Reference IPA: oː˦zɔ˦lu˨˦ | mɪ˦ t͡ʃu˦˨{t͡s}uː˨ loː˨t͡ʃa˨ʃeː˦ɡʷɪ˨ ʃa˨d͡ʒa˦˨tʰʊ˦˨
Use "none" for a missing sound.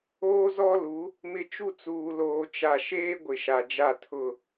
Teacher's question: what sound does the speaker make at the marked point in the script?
t͡s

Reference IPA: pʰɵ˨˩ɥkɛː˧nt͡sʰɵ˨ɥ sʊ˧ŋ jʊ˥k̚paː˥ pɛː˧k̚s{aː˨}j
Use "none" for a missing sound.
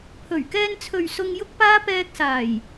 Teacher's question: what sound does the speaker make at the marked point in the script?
aː˨˩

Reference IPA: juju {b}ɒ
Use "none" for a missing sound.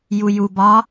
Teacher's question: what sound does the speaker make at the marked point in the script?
b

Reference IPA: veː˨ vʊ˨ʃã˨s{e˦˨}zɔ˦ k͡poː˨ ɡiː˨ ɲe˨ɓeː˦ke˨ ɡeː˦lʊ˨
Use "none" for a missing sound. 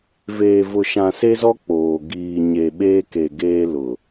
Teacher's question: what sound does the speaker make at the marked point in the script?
e˦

